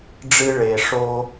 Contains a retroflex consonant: yes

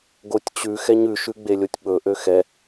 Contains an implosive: yes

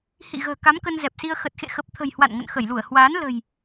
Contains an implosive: no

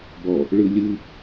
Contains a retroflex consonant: yes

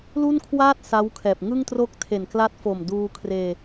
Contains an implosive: no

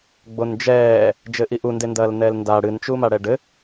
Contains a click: no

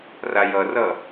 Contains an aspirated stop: no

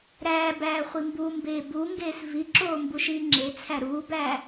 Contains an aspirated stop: yes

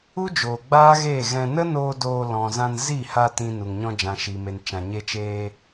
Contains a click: no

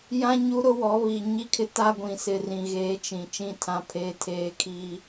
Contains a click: no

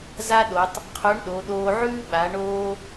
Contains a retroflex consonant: yes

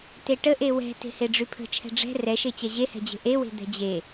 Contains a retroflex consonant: yes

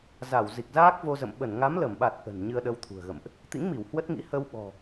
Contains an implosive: yes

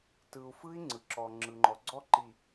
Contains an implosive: no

